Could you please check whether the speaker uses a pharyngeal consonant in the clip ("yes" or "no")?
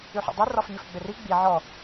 yes